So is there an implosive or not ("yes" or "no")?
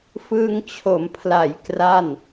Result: no